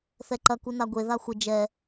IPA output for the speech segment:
θɛǃɐku naɡʷe ðaxʷɘ d͡ʒɛ

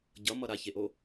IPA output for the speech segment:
ɟʌmʌ ɾaçeʔo

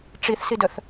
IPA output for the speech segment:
ʈ͡ʂiθsidəθ

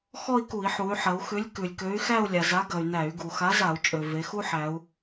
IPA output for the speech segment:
xɔ˥˧i̯ku˧˩˧i̯ħu˩˧y̯ ħɐ˩˧u̯xʉ˨˥lʲ kʉ˩lʲkø˨˥y̯ xæ˥˧u̯lʲa˩za˨˥ɡɐ˩y̯ næ˧˩˧y̯ɡu˩ xa˨˥za˧˩˧u̯t͡ʃʼø˩ ve˩˧xu˥ħæ˩˧u̯

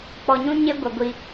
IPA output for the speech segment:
k͡pɔ˨ɲũ˦ ɲe˦ɡʷɛ˨ ɡʷi˦

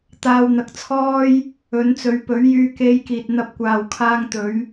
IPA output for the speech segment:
t̪aː˧wn̪ɐ˨˥k̚t͡sʰɔː˥j | ɵ˨˧nt͡sɵ˨˧ɥpɵ˨˥ɥ jyː˧ke˧jkiː˨t̚ n̪ɐ˧p̚kʷaː˨wkʰaː˧ŋt̪ɵ˨˧ɥ

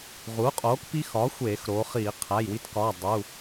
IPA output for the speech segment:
ʁuː˩˥qʼoː˩˥kpi˦˥xɒː˩˥ xʷeː˧˩˧xɾoː˩˧χiː˧˩˧ qʰæ˩˧˩jwi˦˥tkɒː˩˧˩ dˤu˩˧˩

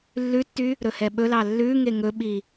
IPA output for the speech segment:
lːʉtːy | ɾɵhɛɓɵlɑ lːʉ ŋeŋɵɓi

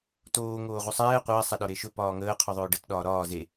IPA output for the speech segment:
toː ŋoːʁusˤɛː qʷɐː sˤɛɗɒɾeʃɵ pɒːŋəː qʰuðˤɵːɖət ɗɒːɾɒː ze

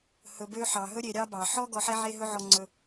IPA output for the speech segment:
hɵ˨bø˦ħɑ˩ɦɵ˥ ɾʲe˨ɾʲɑ˥bɑ˩ ħɔ˥ɡɔ˨ħɛ˦ ʕe˦ɦɵ˦ʕɔ˨ ŋ͡ǀɵ˨

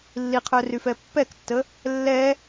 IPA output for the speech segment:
lːiqʰœryfɛ pːɛktːə | lːɛ

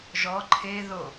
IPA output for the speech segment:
ʒɔ ǃʰe ðo

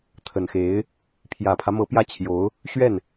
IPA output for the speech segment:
t̪ʰə˨˩nxe˧˥ɪ̯ | pʰjä˨˩pʰä˦mɤ˧˥ pjä˥˩t͡ɕʰjo˧˥ʊ̯ | ɕɥɛ˥˩n

